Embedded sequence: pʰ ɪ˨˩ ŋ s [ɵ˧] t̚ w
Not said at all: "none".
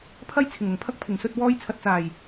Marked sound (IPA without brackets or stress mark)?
ɵ˨